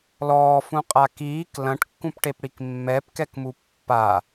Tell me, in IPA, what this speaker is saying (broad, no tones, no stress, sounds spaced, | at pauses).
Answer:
l ɔː f ũ qʼ a k iː k l ɐ̃ ʈ kː ũ p ʈ e p ɽ i k mː ɛ p k ɛ k m u pː a